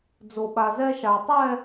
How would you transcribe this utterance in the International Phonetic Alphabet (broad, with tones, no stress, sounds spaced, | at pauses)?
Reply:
d͡z o˧ ɓ a˧ z ɛ˥ ʃ a˧ tˤ ɛ˥˧